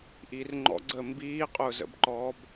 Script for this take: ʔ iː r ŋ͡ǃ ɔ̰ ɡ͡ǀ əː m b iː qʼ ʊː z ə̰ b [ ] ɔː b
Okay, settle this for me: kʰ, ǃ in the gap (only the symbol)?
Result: ǃ